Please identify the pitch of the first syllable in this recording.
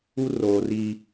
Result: high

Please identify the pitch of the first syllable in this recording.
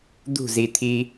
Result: falling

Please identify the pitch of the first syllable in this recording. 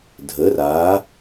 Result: rising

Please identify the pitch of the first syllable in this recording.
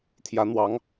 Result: rising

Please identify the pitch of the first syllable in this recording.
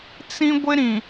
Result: high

